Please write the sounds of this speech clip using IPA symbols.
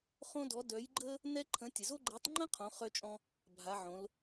χ õ˥ d ɔ˧˥ d œ˧˥ j ɡ͡ǃ ə˥ | n ɛ˥ ǃʰ ə̃˧˥ tʲ ə˨ z o˥ ɡ͡ǃ ɛ˧˥ tˤ ŋ͡ǃ ə̃˥ qʰ õ˧˥ χ œ˥ t͡ʃʼ ɔ̃˥ | bʱ a˧˥ ʕ õ˧˥ l

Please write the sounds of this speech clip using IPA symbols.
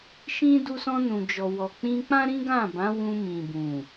ʃ ĩ˦ d u˧ s ɔ̃˧ n ũ˨ d͡ʒ ɔ˨ w ɔ˨ k͡p ĩ˧ k͡p ã˦ ɾ ĩ˦ ɡ ã˦˨ b ã˨˦ w ũ˧ m ĩ˨ b ũ˨

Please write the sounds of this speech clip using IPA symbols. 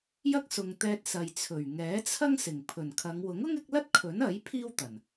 j ɐ˥ k̚ s ʊ˨ ŋ t̪ ɛː˧ t̚ s ɐ˨ j t͡sʰ ɵ˨˩ ɥ ŋ ɛː˨˥ t͡sʰ ɐ˥ ŋ s ɪ˨˩ ŋ pʰ ɵ˨˩ n kʰ ɐ˨˧ ŋ w ʊ˨˥ ŋ ʊ˥ ŋ ɪ˨˥ k̚ l ɐ˥ t̚ kʰ ɵ˨˥ n ɐ˨˥ j pʰ iː˥ w t̪ ɐ˨˩ n

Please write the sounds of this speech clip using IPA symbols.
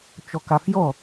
t͡ʃ ɔ k a f j ɔ

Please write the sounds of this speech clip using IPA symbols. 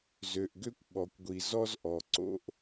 z ø˨ ʔ ɡ ø˦ kʷ ɓ ɔ˨ kʷ ɡʷ i˨ z ɔ˦ z ʔ ɔ˨ ǀ o̰˦ ʔ

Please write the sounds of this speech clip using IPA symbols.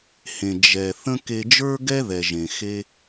h ẽ˩ d͡ʒ ɛ˩ θ ə̃˦ k e˨ d͡ʒ ə˞˦ ɡ ɛ˦ ð ɛ˩ ʒ ẽ˩ x e˦

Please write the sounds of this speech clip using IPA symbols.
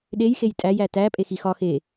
ɗ e j x e j tʼ æ j æ t æ pʼ e x i x ɒ x e

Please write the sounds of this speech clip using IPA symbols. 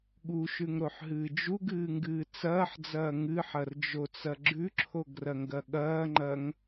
ɠ u ʃ ʉ ŋ ɾ o ħ ɦ ɨː d͡ʒ u ɡ ɨː ŋ ɡ ɨː t͡s ɐː ħ d͡z ɐː ŋ ɨ ħ ɐ r d͡ʒ o t͡s ɐ ɡ͡ǁ ʉ ǁʰ o ɡ r ɐ ŋ ɡ ɐ ɠ ɐː ŋ͡ǃ ɐ ŋ

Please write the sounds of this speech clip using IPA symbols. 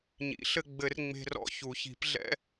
ɲ ḭ˨˩˦ ɬ ɘ˧ ɡ͡b ɘ˧˥ r ŋ͡m e̤˧ r ɔ̰˧ ç u˨˩˦ ç i̤˨˩˦ p ɮ ɛ̰˧˥˧

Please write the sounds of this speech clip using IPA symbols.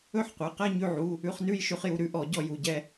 ɵ˥˧ ħ qʷ ɛ˩˧˩ q ɛ˥˧ ɲ ʉ˧ ʕ u˩˧˩ | ʉ˧ χ n ʉ˥˧ j ʃ ʉ˧ χ j u˩˧˩ ɾ ʉ˥˧ ʔ ɔ˧˩˧ ɟ ɔ˧ j u˩˧˩ ɟ ɛ˥˧

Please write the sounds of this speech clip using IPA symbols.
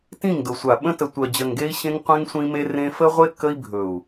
t ĩ˦˨ ŋ d ʊ˨ sʷ a˨ ɓ ə̃˦ t ə˨ tʷ ɜ˨ d͡ʑ ɜ˨ ŋ ɡ e˦ i̯ ɕ ẽ˦ ŋ qʷ ẽ˦ ŋ sʷ ĩ˦ m e˦ r ẽ˦ f ə˦ ʁʷ e˦ k ə˦ i̯ bʱ ɵ˨ u̯

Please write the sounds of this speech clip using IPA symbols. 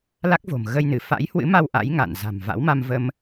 l a˦˥ k̚ v o̤˨˩ m ɣ ə˧ j n ɨ˧˩ f a̰˧˥ j h w ɨ̰˧˥ m a˧ w ʔ a̰˧˥ j ŋ a̰˧˨ n z a̤˨˩ m v a̰˧˥ w m a˧ m v ə˧ m

